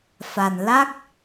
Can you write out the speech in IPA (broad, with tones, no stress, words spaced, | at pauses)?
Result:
fa˨˩nla˦˥k̚